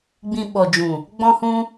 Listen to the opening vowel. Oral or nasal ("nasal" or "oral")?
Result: nasal